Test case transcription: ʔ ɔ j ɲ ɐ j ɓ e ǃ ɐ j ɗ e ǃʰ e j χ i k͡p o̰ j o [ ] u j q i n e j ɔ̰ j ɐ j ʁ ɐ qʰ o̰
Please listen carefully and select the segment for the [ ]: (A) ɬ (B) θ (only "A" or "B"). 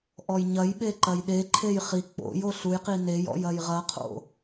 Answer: A